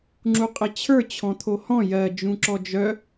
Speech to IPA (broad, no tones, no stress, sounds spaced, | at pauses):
ŋ͡ǁ u qʼ ɪ t͡ɕʰ ə˞ t͡ɕʰ ɔ̃ t̪ʰ o h ɔ̃ j ɜ d͡ʒ ũ ǁ ɔ d͡ʒ œ